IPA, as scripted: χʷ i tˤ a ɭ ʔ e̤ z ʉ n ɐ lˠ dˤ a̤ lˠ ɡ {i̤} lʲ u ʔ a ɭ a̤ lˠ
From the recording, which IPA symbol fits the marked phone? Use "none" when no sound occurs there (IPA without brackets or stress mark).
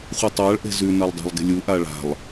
e̤